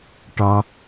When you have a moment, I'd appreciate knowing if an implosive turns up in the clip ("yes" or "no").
no